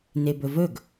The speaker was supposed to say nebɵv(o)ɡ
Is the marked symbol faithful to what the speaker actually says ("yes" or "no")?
no